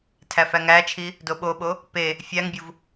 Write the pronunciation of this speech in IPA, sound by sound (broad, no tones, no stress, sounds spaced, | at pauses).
tʰ æ f æ ŋ æ t͡ʃʰ i | d o ɓ o ɓ o | p e | fʲ æ ŋ bʲ u v